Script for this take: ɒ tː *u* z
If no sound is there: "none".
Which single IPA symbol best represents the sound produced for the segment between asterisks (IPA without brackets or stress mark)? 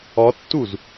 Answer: u